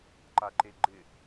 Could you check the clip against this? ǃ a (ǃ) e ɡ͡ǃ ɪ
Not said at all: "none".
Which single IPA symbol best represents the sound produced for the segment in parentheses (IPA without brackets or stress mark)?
ǃ